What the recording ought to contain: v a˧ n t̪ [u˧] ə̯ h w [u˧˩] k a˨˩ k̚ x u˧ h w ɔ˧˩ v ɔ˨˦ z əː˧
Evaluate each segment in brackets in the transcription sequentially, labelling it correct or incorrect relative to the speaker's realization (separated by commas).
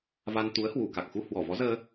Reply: incorrect, correct